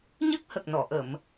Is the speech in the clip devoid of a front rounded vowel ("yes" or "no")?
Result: yes